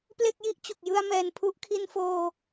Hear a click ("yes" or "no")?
no